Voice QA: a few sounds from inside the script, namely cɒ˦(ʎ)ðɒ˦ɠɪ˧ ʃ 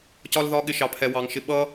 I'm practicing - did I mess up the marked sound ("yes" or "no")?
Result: yes